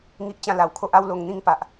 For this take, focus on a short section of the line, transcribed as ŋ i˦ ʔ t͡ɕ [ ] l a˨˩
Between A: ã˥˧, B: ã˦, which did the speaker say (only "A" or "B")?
A